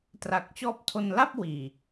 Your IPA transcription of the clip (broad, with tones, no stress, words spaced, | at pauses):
tra˨˩k̚t͡ɕɔː˦˥p̚tʰo˧n la˥˩p̚wiː˨˩